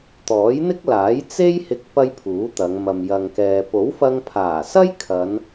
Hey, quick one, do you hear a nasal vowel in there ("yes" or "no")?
no